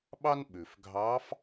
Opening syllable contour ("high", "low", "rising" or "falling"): high